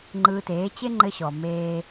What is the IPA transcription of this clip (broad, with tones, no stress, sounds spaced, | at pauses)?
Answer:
ŋ͡ǃ ɯː˧ t eː˩˥ t͡ɕ e˥ ŋ͡ǃ ɘ˧ ɕ ɔ˩ m eː˧